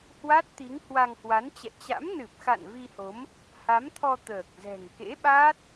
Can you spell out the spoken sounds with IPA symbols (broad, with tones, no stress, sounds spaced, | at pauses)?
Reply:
h w a˦˥ t̚ t̪ i˨˦ ŋ h w a˧ ŋ h w a˨˦ n t͡ɕ ɛ̰˧˨ t͡ɕ a̰˧˥ m n ɨ˨˩ p̚ x a̰˧˨ n v i˧ h o˨˦ m | h a˨˦ m t̪ʰ ɔ˧ t̪ əː˨˩ k̚ z ɛ̤˨˩ ŋ k ḛ˧˥ ɓ aː˦˥ t̚